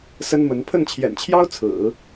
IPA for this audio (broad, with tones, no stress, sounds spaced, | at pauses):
s ə˥ n m ə˧˥ n pʰ ə˥˩ n t͡ɕʰ j ɛ̰˨˩ n t͡ɕʰ j ɑ˥ ʊ̯ t͡sʰ ɹ̩˨˩˦